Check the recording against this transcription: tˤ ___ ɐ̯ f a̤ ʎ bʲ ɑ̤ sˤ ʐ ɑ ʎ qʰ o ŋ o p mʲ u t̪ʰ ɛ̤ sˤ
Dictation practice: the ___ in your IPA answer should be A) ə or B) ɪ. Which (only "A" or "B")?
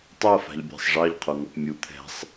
B